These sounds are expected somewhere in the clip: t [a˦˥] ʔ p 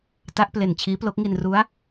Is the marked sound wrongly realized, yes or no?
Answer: no